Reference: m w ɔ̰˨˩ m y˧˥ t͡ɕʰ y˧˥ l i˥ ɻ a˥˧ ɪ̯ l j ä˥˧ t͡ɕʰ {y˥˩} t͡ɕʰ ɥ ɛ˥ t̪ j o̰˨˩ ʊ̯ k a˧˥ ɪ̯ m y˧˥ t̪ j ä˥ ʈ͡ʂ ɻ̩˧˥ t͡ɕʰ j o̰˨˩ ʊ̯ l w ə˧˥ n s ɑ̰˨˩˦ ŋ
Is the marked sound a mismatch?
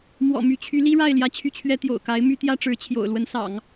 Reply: no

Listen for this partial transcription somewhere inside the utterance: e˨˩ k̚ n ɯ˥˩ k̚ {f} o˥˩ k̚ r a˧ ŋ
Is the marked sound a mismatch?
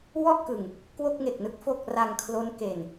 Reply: no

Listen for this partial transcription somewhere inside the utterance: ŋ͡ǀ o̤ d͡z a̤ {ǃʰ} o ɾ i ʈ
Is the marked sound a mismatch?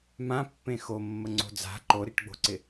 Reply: yes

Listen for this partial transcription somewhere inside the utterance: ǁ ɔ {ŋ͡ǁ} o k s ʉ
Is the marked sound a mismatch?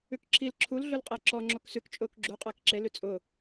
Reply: no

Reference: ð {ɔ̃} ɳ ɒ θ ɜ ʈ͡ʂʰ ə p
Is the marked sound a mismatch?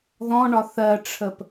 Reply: no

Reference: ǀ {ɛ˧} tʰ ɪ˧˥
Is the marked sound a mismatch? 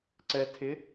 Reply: no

